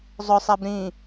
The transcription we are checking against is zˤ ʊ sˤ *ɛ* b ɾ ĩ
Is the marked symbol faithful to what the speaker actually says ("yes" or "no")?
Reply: yes